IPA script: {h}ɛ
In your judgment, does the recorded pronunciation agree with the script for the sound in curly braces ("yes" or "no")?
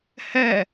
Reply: yes